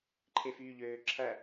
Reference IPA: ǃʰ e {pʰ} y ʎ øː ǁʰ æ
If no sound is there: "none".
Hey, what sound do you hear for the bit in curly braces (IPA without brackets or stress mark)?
f